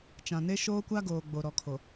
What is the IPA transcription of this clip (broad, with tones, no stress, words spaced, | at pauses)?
t͡ʃã˨ne˦ ʃoː˦kʷa˦ɡoː˨ ɡ͡bo˨ ɾɔ˨kʰo˨